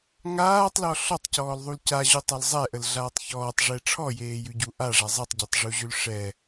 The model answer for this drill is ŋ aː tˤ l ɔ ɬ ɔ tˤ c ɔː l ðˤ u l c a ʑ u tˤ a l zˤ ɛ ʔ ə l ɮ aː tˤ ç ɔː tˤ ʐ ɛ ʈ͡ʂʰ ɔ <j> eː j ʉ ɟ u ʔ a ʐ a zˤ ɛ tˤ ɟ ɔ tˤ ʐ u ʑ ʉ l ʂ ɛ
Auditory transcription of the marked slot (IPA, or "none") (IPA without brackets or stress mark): j